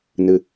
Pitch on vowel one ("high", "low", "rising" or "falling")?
low